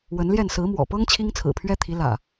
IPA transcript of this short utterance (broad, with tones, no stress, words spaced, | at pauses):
wə˨˦nljɛ˥˨n sɹ̩˨˦mwɔ̰˨˩pɤ˦ŋ t͡ɕʰi˦ŋt͡sʰɹ̩˨˩pʰɥɛ˦t̪ʰi˨˦ lä̰˨˩